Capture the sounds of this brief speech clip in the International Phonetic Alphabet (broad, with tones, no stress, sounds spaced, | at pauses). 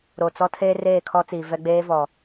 ɾ o˨ t͡s ɔ˦ tʰ eː˦ r eː˦˨ kʰ ɔ˦ t͡s iː˨ v ɛ˦ ɡ͡b eː˦ v ɔ˨